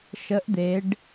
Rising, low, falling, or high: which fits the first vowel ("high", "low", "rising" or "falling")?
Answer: rising